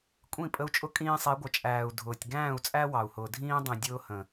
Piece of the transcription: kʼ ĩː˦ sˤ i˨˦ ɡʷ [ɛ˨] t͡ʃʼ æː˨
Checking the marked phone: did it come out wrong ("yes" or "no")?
yes